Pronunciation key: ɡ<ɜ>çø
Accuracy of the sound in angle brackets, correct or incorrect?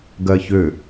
correct